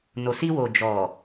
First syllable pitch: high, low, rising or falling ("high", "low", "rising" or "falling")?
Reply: low